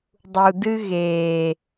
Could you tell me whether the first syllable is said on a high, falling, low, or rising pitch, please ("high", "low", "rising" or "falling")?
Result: low